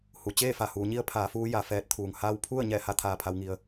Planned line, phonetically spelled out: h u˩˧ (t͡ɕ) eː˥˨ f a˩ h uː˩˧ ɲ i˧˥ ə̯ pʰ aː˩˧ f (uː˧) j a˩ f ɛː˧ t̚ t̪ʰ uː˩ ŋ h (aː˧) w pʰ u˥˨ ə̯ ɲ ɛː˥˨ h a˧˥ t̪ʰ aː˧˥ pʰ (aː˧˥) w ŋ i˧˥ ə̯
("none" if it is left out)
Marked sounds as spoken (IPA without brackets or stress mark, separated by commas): t͡ɕ, uː˧, aː˧˥, a˧˥